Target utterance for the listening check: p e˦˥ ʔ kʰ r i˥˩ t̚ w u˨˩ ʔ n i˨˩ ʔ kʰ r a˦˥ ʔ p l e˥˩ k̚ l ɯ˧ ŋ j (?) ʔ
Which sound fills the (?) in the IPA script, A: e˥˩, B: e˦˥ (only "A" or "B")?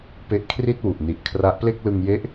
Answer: B